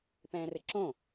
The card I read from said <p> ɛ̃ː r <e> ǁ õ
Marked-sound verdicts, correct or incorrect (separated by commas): correct, incorrect